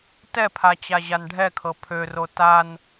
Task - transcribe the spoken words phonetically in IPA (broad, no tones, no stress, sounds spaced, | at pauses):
t ɛ pʰ a t͡ɕ a ʑ a n ɖʱ ɛ kʰ ɤ pʰ ø r o t a n